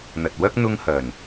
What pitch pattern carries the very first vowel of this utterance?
low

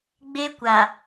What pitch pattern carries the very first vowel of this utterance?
high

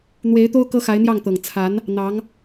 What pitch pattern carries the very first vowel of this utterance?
rising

